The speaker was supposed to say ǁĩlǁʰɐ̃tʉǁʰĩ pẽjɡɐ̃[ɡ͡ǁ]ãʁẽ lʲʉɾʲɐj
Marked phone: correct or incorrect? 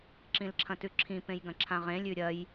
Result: incorrect